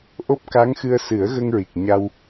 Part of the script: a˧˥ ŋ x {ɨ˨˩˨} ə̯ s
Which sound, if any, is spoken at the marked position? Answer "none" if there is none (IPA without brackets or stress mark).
ɨ˧